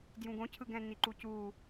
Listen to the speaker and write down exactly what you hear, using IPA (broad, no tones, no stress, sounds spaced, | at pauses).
d j ũ ɡ õ cʰ ɯ ɡ ɛ̃ n i ǃ u c u